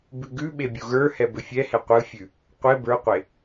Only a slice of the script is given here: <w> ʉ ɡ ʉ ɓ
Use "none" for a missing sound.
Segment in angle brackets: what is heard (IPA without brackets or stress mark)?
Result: b